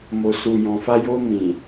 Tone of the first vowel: low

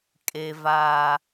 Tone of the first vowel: low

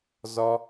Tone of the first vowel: high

